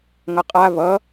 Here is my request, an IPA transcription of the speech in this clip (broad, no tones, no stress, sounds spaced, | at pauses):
ŋ ʌ qʼ a β ʌ